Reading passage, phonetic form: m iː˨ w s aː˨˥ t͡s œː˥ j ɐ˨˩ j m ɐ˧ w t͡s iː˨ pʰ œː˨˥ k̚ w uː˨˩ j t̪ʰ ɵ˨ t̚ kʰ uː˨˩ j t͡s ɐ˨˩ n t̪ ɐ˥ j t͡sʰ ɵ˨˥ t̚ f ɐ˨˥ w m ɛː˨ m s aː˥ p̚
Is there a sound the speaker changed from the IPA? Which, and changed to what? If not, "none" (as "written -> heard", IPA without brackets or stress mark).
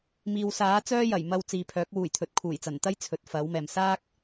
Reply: p̚ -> k̚